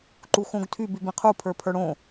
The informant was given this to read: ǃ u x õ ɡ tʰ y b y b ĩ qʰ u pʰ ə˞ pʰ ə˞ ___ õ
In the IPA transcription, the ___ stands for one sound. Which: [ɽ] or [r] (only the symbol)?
ɽ